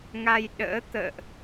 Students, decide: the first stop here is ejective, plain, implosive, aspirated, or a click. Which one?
implosive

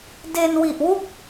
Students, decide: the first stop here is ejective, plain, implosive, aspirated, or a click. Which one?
plain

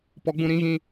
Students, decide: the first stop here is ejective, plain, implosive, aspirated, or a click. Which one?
plain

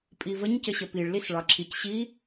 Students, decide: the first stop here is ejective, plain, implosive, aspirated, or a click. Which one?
ejective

